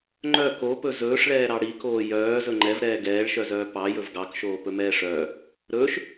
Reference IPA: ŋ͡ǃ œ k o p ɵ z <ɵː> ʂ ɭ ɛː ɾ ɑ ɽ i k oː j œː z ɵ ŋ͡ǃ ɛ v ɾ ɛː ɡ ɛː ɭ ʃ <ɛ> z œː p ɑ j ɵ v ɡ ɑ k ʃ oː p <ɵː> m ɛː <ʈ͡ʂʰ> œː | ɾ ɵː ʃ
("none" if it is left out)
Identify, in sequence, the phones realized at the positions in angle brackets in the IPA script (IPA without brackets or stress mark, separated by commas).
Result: ɵː, œ, ɵ, ʂ